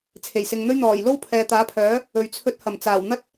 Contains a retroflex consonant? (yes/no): no